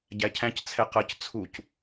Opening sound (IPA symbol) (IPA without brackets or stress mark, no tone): ɟ